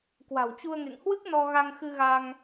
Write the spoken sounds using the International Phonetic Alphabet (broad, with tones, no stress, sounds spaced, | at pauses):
k w a̤˨˩ w t͡ɕ u˧ ə̯ ŋ ḛ˧˨ ŋ h w ɨ˦˥ k̚ n ɔ˧ ɣ a˧ ŋ x ɨ˧ ɣ a˧ ŋ